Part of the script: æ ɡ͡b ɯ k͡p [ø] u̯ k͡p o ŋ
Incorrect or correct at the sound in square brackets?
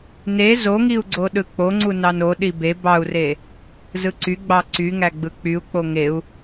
incorrect: y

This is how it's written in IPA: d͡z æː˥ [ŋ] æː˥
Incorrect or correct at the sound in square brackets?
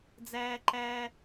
incorrect: ǃ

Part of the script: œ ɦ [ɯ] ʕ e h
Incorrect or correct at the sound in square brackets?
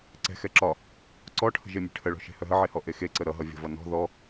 incorrect: ə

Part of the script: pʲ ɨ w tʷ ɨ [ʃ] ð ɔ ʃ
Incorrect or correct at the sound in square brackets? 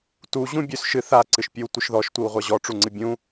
correct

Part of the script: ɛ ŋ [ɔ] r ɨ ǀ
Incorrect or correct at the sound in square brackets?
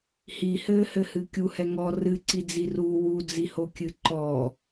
correct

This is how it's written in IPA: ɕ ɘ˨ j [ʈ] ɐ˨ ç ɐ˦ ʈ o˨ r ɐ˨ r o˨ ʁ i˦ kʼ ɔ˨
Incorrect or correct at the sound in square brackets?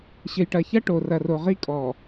correct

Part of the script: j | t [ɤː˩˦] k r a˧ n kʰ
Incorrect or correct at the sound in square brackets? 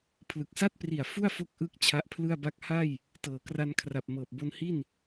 correct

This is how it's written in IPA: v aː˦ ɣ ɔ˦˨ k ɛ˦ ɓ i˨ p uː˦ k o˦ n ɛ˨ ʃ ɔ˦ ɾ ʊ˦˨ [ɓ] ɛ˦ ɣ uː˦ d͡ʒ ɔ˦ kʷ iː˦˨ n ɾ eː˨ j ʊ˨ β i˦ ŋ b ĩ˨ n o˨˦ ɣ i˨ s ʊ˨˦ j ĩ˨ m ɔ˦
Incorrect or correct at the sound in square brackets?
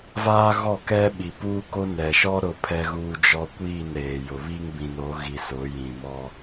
incorrect: pʰ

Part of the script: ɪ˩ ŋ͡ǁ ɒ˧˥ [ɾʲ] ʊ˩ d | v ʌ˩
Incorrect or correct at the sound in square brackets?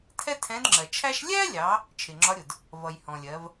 correct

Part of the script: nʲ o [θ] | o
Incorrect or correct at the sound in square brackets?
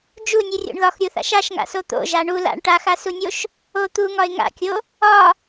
incorrect: ʃ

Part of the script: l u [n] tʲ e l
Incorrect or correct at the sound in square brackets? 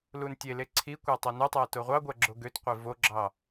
correct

